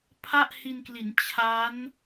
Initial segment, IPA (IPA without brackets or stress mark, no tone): pʰ